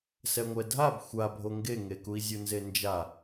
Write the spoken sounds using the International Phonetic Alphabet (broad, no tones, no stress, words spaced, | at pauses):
sɛŋʷɛdʱab xʷabʱo ŋɡeŋekui̯zʲu nzend͡ʒa